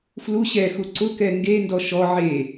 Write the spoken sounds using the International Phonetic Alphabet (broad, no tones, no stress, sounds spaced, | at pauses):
f l u ɕ ɛ x u ǀ ʊ k ɛ ŋ ɡ e n d ɔ ʃ ɔ ʕ e